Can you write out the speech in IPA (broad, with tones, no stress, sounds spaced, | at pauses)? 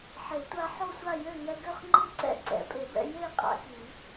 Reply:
ħ e˨˩˦ tʷ a˧ ħ o˥˨ sʷ a˥˨ j ø˥˨ ŋ ɛ˧ ɡ ø˥˨ χ ŋ͡ǃ i˥˨ ǀ ɛ̰˥˨ ǀ ɛ̰˨˩˦ pʼ e˨˩˦ b ɛ̰˧ j e˥˨ qʼ a̰˧ k i˨˩˦